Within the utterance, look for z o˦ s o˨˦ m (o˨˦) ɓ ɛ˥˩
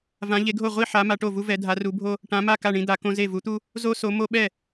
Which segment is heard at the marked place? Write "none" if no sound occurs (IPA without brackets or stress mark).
o˦